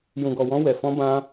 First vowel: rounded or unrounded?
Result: rounded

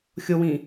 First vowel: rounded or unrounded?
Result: rounded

